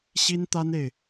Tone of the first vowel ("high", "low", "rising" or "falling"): high